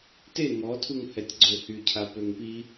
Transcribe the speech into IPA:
t e ŋ ɔ tʰ u ŋ h ɛ tʲ ɡ͡ǀ ø h y cʰ a p ø ŋ p i

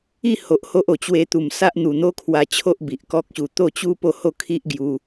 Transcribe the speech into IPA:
i˥˧ h o˨ ʔ h o˦ ʔ o˨˩ t͡ɕ w e˧ t̪ u˨˩ m s a˦ ʔ n̪ u˨˩ n̪ o˦ kʰ w a˧ t͡ɕʰ o˦ ʔ b i˨ ʔ k ɔ˦ k̚ ɕ u˧ t̪ o˥˧ t͡ɕ u˦ p o˥˧ h o˥˧ kʰ i˦ ʔ ɡ j u˧

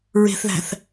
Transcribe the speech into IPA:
ɹ e̤ θ ð æ̤ θ

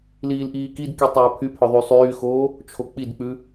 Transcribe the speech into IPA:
l iː l ʔ iː k i d k i tˤ æː pʰ y pʰ œ ðˤ y sˤ yː x oː | t͡ʃʰ o k͡p i d k͡p ʉ

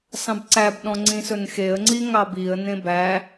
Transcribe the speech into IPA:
s ɑ̃ b ǀ æ b ɗ ɔ̃ ŋ͡ǀ ĩ s ɵ n x e ə̯ ŋ͡ǀ i ŋ ɑ b i ə̯ n ẽ b æ

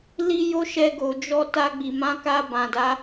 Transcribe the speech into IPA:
l i˦ j o˦ ʃ ɛ˧ ɡ o˨ d͡ʒ ɔ˧ t a˧ ɡ͡b i˨ m ã˨˦ k a˧ b ã˨ d a˨˦

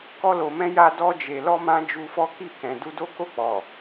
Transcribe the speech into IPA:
k ɔ˧ l o˨ m ɛ̃˧ j a˧ d ɔ˧ d͡ʒ e˨ l ɔ˧ m ã˧ d͡ʒ u˧ f ɔ˦ k i˦˨ k ɛ̃˨ d u˧ d o˦ k o˦˨ k͡p ɔ˨

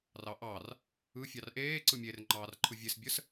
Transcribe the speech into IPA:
r ɑ ʔ ɑ r | ɯ fʲ ɑ r ʔ eː ǀ ɯ mʲ e r ŋ͡ǃ ɑː r ǃʰ ɯ vʲ e s bʲ ə s

